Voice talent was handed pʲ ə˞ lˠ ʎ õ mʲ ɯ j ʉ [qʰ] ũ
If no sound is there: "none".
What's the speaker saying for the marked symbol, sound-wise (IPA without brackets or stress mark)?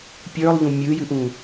ʔ